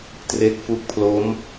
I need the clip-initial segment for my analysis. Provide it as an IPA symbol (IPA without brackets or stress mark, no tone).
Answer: t